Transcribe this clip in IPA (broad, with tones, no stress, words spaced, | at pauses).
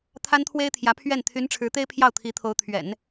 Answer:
t̪ʰa˥nt̪ʰwe˥ɪ̯t̪ʰjä˧˥ pʰɥɛ˥˩n t̪ʰy˧˥nʈ͡ʂʰɻ̩˧˥t̪e˥ɪ̯ pʰjɑ˥˩ʊ̯t̪ʰi˧˥t̪ʰo˧˥ʊ̯ t̪ʰɥɛ̰˨˩˦n